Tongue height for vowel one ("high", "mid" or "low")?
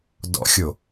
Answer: mid